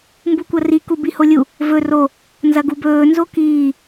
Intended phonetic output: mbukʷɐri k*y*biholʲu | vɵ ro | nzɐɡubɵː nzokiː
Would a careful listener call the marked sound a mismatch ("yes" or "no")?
yes